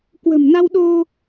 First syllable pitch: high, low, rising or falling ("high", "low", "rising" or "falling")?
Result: low